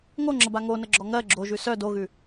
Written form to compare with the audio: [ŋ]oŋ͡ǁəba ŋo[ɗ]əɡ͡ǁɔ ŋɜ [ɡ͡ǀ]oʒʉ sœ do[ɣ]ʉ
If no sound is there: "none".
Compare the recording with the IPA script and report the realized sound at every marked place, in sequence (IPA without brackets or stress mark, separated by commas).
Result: ŋ, n, ɡ͡ǁ, ɣ